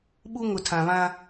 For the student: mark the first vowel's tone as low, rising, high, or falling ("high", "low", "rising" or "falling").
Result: high